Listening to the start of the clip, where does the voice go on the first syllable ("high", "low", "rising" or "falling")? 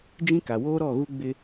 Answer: high